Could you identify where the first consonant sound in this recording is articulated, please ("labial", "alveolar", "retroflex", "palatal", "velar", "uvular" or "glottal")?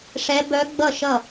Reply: retroflex